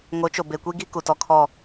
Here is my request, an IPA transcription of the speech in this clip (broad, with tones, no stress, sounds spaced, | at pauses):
ŋ o˨˦ t͡ʃ o˨ b e˨ kʷ i˦ ɡ i˦ k u˨ t ɔ˨ kʰ ɔ˦˨